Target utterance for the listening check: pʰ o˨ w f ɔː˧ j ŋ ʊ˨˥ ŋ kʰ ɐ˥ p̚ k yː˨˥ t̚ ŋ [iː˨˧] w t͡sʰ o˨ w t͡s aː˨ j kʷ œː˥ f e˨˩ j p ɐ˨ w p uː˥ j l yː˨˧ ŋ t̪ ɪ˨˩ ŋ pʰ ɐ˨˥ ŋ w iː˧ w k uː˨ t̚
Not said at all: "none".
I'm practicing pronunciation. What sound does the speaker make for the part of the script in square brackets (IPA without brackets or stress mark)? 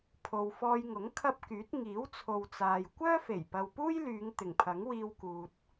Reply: iː˨˥